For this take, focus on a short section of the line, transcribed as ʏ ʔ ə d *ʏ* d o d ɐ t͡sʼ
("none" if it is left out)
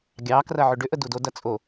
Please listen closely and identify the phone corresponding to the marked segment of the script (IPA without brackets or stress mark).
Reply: u